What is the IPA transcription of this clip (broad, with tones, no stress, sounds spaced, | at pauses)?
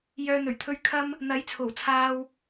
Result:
j œː˨ n̪ ɵ˨˩ ɥ t̪ʰ ɵ˧ ɥ kʰ ɐ˧ m | n̪ ɐ˨˥ j t͡sʰ o˨˩ w t͡sʰ aː˧ w